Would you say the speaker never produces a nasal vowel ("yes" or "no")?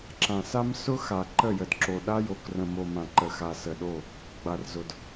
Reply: no